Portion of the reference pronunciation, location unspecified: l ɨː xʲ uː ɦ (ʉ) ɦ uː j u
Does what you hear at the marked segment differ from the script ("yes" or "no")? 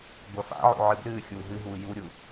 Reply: yes